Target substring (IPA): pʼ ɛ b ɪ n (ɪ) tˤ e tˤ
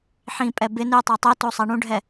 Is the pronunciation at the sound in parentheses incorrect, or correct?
incorrect